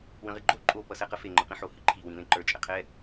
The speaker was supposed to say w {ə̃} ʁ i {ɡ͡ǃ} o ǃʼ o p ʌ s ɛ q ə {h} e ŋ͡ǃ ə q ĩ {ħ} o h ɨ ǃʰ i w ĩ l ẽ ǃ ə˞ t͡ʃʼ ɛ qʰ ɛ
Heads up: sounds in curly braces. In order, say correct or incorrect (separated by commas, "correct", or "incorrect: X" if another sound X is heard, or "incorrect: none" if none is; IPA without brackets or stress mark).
correct, correct, incorrect: f, correct